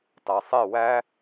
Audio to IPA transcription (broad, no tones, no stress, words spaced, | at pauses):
tɑsˤe wæ